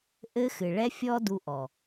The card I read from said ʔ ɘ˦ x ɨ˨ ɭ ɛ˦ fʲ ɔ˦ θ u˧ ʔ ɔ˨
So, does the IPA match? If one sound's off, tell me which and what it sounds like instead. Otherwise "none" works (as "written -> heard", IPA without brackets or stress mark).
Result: θ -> d